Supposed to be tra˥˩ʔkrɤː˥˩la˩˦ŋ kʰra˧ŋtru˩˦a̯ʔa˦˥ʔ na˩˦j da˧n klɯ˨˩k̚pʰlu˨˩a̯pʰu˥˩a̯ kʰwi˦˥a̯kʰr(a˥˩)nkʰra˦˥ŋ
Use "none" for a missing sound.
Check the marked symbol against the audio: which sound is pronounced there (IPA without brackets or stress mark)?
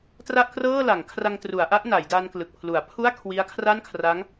a˥˩